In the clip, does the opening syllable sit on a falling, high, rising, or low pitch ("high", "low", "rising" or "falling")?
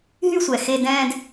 high